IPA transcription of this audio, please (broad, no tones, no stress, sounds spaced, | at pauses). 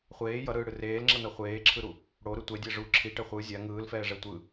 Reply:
χʷ eː j ʌ ɾ ɯː ɽ ɯ r eː l ŋ͡ǁ ʌ n ʌ χʷ eː ǁʰ ɯ ɾ u | ɽ o ɾ ɯ tʷ ɛ dʲ ɛ ʐ u ǁʰ i ʈ ɛ χʷ ɯ zʲ a ŋ ɯː l f ɛː ʐ ɛ tʷ ɯ